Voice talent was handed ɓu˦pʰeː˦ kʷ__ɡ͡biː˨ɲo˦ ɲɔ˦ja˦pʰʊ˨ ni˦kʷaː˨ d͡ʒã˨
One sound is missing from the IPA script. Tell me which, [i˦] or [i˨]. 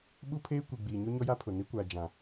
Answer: i˨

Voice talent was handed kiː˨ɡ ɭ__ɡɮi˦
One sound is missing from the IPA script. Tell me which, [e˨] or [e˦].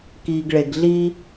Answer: e˨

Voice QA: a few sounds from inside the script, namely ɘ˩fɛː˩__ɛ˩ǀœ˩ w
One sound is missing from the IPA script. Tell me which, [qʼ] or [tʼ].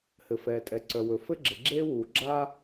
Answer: tʼ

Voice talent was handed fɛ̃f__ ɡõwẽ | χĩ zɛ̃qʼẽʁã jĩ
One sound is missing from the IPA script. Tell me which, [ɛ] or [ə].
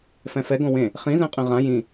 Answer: ɛ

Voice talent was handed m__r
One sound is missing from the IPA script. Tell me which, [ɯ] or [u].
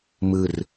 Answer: ɯ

